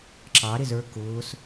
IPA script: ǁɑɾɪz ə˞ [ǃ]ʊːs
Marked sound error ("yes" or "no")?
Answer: yes